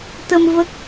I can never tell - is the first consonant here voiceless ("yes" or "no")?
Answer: yes